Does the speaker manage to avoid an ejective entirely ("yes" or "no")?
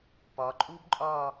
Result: no